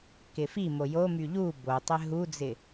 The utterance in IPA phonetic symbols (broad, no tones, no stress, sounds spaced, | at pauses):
k ɪ f i m o j o m y ʎ u b o tˤ ɪ ɦ u d͡z ɪ